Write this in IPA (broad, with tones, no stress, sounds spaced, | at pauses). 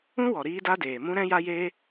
ũ˦ w ɔ˨ ɾ iː˦ d a˦ d eː˨ m ũ˦ ɾ ɛ̃˦ j a˦ j eː˦